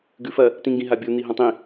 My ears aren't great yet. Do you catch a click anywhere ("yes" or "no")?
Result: no